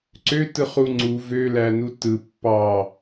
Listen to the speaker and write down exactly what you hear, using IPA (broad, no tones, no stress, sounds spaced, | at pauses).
ǀ ø t ɯ χ u ŋ͡ǀ u v ø l æ n u t ɯ pː ɑ